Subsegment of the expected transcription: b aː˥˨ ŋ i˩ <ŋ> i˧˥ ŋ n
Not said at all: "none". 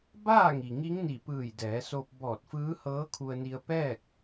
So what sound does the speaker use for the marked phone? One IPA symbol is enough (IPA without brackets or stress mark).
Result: ŋ